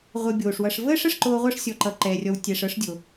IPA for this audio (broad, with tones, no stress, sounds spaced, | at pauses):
ʁʷ ə˨ bʲ oː˩ ʂ w ʌ˨ ʂ v əː˥ ʂ ə˦ ʂ ǃ oː˦ ʁʷ ɤ˥ ʂ sʲ ɔ˨ ǃ ʌ˨ ǃ ɛː˩ rʲ ɔ˨ w tʲ ɛ˨ ʂ ɤ˦ ʂ dʲ o˩